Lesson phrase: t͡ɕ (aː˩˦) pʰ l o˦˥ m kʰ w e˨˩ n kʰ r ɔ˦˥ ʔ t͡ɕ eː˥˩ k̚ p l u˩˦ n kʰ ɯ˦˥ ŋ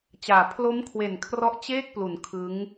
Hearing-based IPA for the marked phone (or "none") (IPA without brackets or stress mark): aː˩˦